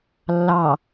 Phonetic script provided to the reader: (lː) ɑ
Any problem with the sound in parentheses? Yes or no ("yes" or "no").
no